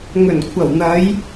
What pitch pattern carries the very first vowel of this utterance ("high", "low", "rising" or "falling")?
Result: low